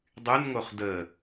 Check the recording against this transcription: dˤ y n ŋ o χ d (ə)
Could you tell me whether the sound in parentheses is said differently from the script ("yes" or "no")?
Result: no